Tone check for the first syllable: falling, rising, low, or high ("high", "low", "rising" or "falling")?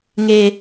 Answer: high